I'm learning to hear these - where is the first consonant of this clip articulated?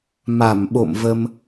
lips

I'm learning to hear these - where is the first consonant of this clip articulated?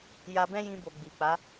palate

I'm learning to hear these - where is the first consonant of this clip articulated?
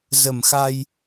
tongue tip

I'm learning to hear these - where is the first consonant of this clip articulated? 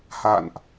throat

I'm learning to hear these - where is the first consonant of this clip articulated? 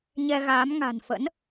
palate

